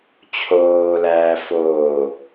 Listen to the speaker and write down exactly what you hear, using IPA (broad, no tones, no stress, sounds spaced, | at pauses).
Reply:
t͡ɕʰ oː l æː f oː